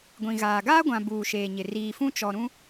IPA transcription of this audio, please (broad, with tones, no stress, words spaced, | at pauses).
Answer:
ɡʷĩ˨ɣaː˨ ɡaː˦ɡʷã˨ buː˨ʃeː˨ɲɪ˨ riː˨fũ˦t͡ʃɔ˨ɾũ˦